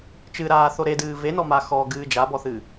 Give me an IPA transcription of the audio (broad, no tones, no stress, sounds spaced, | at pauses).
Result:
t͡ʃ ɨ ɾ aː θ o ɾ e d ɨː v e n ɔ m a x ɔ ɡ ɨː d͡ʒ a b ɔ θ ɨ